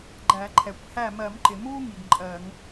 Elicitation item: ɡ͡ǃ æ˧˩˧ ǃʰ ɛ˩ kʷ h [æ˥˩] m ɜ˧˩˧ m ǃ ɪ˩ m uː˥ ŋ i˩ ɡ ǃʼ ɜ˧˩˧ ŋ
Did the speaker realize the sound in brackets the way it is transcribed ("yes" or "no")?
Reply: yes